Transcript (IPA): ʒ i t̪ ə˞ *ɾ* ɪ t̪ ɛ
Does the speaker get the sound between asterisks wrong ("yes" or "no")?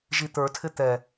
yes